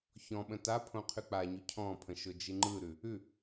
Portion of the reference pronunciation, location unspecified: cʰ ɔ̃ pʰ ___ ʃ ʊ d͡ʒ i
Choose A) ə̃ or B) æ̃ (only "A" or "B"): A